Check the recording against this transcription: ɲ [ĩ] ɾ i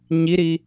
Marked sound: incorrect: i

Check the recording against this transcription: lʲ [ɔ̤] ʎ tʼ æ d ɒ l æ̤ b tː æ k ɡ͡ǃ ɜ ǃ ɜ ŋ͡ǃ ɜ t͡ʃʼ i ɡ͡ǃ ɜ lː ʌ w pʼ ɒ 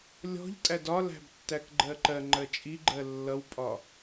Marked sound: correct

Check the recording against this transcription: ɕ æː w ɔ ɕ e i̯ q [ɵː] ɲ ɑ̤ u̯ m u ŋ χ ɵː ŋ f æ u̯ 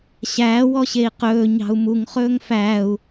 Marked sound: correct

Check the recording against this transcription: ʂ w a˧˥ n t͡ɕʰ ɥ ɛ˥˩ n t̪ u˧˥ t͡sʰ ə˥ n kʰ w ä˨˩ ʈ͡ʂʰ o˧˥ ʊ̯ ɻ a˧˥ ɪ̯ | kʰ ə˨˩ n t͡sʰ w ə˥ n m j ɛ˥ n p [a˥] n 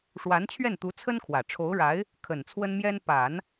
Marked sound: incorrect: a˨˩˦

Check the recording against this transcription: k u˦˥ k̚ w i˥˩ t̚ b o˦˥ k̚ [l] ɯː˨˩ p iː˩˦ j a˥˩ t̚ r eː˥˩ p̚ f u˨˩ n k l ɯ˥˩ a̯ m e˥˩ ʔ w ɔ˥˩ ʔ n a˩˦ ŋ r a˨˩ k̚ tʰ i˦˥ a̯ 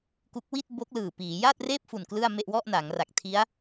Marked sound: correct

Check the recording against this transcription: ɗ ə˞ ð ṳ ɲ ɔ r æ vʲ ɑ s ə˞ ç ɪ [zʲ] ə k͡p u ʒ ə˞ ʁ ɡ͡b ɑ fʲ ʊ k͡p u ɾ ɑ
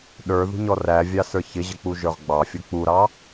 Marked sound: incorrect: ʑ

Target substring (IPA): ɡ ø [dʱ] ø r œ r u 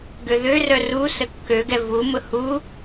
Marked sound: incorrect: ð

